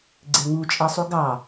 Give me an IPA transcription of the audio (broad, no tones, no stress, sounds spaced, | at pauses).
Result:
ɡ͡ǀ e ŋ u t͡ʃʼ ɛ sˤ u ɡ ɑ